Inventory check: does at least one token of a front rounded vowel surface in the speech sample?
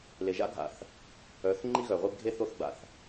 yes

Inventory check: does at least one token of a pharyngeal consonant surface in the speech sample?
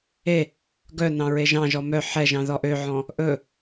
yes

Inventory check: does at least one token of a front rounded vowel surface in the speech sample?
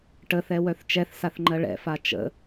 yes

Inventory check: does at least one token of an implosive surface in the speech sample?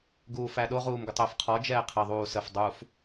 yes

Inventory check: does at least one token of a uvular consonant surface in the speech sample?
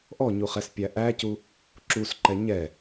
yes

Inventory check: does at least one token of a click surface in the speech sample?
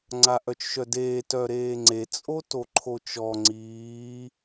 yes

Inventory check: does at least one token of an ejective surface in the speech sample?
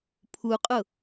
yes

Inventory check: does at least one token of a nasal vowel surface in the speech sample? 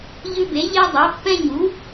yes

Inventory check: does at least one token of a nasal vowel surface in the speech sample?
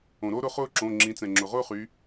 yes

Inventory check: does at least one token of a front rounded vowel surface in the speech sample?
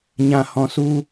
no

